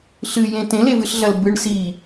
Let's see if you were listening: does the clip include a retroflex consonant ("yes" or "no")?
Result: yes